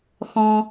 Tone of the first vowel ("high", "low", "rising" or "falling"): high